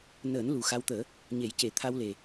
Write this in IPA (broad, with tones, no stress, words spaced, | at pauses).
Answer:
nəː˨˩˦n lu˨˩xa˧wt̪əː˨˩˦ | ɲe˨˩˦jce˨˩˦ t̪ʰa˧wle˨˩